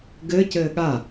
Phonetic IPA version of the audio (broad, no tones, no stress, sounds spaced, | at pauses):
ɡ ɘ c ɘː ɠ a